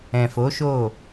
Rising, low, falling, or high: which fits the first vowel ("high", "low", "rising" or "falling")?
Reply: low